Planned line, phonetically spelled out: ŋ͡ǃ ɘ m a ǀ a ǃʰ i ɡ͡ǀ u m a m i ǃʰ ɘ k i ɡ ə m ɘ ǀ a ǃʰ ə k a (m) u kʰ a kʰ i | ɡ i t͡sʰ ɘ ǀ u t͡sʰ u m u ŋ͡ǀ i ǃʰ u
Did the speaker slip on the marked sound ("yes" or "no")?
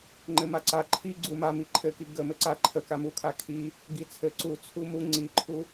no